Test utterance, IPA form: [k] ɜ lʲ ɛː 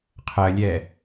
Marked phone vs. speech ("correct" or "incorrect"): incorrect